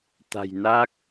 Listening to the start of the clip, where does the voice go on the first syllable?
low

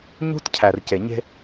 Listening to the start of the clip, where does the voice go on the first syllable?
high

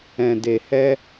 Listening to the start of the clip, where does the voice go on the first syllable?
low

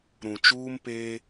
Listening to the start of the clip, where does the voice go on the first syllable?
low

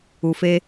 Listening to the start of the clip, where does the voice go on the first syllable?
low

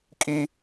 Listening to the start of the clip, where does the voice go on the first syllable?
high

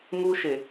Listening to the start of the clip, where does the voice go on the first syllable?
high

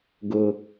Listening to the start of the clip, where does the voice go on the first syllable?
high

